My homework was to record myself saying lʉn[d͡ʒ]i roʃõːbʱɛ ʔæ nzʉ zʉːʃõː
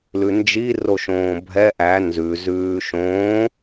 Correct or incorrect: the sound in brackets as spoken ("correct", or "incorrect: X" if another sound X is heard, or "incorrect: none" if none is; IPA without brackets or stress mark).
correct